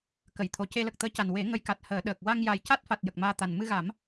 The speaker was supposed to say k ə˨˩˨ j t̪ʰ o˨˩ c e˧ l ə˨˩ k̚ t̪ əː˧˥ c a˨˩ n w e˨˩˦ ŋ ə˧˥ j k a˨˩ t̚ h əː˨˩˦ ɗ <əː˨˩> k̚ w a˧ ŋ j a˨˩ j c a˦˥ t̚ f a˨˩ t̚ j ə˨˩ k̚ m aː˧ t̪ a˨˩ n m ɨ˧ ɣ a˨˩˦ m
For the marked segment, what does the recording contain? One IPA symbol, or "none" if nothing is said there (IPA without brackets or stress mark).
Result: əː˨˩